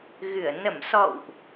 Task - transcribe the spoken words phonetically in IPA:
ɣ ɨ˧˩ ə̯ n ə˧˩ m s ɔ̰˧˨ w ʔ

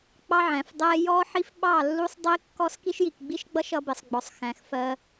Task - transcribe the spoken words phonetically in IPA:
k͡p ɑ˦ ʕ æ̃˨ f dˤ ɛ˦ j ɔ˦ ħ i˦ f ɓ ɑ˦˨ lː u˦ sˤ dˤ i˦ kː ɔ˦ s k i˦ ʃ j i˨ k ɡ͡b i˦ ʃ ɡ͡b ʌ˦ ʃ ʌ˦ b ɪ˨ sˤ ɡ͡b ɔ˨ sˤ x æ̃˨ x f ɜ˦

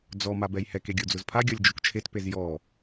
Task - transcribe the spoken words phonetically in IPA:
d͡z ɔ m a b ɛ j h ɛ k e ɡʲ o d͡z ʊ z pʰ a ɡʲ ɔ lʲ d͡ʒ o k t͡ʃʰ e t p e z j ɔ

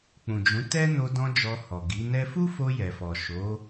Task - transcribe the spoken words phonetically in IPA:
k͡p ũ˨ d͡ʒ ũ˨˦ t ɛ˦ n o˧ d ɔ̃˧ d͡ʒ ɔ˧ h ɔ˨ ɡ i˨˦ n ɛ˧ f u˦ f o˧ j ɛ˨ f ɔ˨ ʃ o˨˦

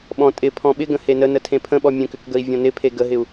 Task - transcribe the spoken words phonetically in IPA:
ɓ ɔ̃ tʼ ɪ pʰ ɔ̃ ɓ ɪ ɡ ə̃ h e n ə n ə tʰ ẽ pʰ ə̃ ɓ ɔ mʲ ə̃ k ʏ k ɡ ə i̯ vʲ ɔ̃ n ɪ pʰ e ɡ ə ɦ ɪ u̯

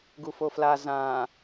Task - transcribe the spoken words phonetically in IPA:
ɡ u f o f l a z ã

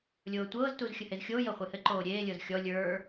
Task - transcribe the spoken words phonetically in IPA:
lʲ oː tʷ ɤː z t u z xʲ ɘ h e z xʲ oː j ɤ χʷ e h ɘ ǃ oː ɾʲ eː lʲ ɤ z xʲ ɔ lʲ ə˞

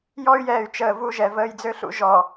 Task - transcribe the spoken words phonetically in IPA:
j ɔ˦ y̯ j ɛː˨ y̯ t͡ʃ əː˨ v u˦ ʒ ɛ˨ v əː˨ j d͡z ø˦ ɬ ṵ˦ ʒ ɔ˨

